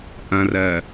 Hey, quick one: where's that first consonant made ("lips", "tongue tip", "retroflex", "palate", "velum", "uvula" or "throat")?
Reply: throat